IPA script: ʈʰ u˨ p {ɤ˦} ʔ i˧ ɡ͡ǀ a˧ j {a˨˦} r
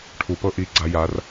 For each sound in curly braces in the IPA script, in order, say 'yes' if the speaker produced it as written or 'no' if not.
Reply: yes, yes

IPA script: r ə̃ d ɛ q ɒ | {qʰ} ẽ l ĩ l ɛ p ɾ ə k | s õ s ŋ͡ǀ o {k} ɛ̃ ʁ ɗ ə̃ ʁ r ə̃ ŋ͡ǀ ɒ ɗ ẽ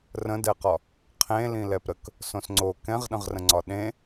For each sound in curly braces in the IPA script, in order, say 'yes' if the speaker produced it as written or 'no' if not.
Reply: yes, yes

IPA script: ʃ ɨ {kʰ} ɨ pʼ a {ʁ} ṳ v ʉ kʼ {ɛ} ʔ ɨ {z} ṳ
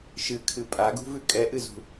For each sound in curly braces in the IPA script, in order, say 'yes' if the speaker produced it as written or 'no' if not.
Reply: yes, no, yes, yes

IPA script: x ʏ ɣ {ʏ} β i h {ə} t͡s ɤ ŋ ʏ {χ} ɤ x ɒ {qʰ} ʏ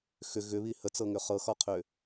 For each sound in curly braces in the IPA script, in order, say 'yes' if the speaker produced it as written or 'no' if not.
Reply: yes, yes, yes, yes

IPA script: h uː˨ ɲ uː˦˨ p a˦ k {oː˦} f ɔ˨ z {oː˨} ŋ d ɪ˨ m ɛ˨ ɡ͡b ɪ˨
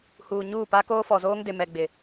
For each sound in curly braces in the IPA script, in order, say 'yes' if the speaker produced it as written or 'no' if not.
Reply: yes, no

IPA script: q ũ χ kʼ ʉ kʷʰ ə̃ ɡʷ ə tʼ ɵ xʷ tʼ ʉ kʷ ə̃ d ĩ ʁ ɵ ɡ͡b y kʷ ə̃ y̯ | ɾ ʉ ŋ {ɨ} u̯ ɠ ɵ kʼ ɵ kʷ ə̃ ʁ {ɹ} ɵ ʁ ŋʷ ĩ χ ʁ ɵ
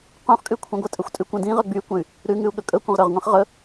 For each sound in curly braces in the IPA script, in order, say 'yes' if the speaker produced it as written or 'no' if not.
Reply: no, no

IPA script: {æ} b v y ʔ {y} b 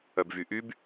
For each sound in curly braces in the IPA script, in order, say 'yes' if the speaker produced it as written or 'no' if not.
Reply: no, yes

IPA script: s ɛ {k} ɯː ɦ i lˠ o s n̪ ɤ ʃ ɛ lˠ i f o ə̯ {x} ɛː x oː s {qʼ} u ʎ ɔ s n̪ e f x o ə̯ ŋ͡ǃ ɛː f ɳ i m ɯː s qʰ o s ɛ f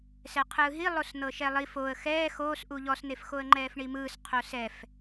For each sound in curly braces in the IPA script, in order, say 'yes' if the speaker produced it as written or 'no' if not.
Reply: no, yes, no

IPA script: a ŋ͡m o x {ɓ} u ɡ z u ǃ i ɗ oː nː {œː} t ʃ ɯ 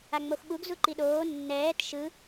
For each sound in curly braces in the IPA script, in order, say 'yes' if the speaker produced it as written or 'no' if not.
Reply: yes, no

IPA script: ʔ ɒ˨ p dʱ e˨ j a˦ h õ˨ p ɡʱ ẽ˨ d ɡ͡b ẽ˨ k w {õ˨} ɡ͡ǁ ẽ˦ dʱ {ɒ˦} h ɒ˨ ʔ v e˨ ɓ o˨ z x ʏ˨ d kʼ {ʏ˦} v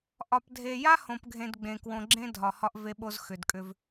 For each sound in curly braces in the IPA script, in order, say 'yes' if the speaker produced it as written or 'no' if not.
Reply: yes, no, yes

